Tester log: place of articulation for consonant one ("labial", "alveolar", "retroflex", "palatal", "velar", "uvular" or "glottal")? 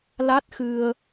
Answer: alveolar